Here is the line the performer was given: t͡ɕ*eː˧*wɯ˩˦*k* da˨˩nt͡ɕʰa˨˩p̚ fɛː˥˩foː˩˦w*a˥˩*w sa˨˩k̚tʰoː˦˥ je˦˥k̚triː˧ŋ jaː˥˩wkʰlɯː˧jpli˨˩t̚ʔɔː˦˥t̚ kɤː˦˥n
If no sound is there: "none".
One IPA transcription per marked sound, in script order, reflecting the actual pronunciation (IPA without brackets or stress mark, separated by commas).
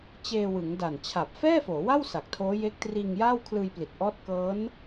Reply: eː˧, ŋ, a˥˩